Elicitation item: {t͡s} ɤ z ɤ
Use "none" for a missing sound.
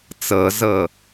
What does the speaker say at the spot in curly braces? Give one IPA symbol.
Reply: t͡s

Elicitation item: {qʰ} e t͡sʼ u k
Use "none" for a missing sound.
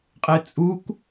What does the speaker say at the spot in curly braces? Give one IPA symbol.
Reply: qʼ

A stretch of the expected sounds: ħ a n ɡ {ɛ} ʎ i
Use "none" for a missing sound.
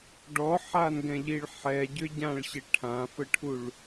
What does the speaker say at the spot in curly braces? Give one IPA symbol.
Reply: ɛ̃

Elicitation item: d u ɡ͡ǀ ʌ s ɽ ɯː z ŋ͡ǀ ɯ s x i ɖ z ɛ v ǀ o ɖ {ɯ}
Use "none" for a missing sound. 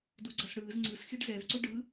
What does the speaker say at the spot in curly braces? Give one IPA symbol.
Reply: ɯ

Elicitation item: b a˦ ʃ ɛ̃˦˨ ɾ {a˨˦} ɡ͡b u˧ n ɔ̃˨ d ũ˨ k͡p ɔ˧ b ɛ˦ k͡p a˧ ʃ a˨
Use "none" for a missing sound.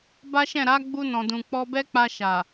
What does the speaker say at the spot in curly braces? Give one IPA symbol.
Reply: a˨˦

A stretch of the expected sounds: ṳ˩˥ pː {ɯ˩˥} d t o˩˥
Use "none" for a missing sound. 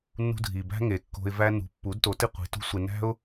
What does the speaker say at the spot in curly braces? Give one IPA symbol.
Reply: u˩˥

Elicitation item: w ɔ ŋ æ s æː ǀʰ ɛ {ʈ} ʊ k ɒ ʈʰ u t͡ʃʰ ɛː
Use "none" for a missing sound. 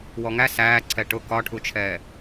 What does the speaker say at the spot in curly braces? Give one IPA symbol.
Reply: ʈ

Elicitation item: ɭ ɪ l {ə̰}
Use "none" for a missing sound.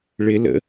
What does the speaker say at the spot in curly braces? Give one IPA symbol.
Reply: ə̰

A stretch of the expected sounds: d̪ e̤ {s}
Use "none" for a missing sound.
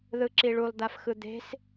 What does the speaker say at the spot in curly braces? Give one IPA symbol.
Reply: s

